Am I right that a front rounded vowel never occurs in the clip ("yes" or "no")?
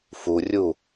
yes